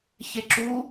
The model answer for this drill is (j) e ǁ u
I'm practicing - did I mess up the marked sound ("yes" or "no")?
yes